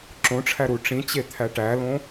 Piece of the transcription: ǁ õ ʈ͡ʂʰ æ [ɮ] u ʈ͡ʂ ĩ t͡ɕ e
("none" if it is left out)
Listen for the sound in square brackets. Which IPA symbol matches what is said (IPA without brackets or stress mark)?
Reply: ɾ